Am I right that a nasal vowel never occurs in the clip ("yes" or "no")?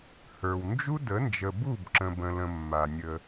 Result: no